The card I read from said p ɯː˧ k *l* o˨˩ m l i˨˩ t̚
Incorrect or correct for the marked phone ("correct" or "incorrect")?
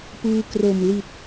incorrect